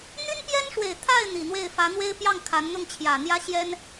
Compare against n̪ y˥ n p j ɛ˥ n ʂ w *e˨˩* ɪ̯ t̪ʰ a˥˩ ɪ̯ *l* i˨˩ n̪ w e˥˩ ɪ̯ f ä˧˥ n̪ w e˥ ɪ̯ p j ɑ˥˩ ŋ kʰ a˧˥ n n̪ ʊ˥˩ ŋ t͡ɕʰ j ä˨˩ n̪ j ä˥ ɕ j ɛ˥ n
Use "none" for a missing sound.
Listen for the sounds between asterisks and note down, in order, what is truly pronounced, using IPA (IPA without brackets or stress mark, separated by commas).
e˨˩, n̪